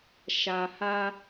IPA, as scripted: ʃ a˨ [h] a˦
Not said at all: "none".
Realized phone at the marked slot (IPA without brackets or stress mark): h